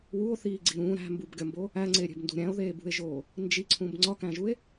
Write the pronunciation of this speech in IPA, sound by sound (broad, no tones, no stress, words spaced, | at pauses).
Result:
wuo̯θiːɡ͡ǀi ɾũ ɾæ̤mbubɡʲɒmbo | æŋ͡ǀeɾʲe̤bndṳ ɾʲæ̃o̯ðeːbṳe̯ʒoː | nd͡ʒiǀʰũb ŋ͡ǀɒkæ̃ʒue̯